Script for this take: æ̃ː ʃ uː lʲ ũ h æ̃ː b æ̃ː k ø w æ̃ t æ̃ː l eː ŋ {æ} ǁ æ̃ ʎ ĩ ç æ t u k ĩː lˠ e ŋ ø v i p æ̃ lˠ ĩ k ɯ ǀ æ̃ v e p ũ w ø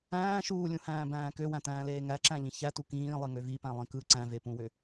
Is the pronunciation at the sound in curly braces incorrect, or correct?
correct